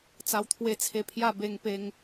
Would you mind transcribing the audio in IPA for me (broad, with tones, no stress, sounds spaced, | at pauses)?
t͡s a˧ w t̪ʰ w e˧ t͡sʰ e˧ pʰ j a˥˧ b e˧ ŋ p e˧ ŋ